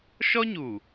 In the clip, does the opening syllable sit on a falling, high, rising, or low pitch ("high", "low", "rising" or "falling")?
high